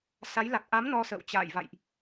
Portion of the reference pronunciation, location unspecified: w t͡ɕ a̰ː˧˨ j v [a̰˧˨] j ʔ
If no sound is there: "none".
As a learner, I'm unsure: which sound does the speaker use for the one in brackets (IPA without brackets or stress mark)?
a̰˧˨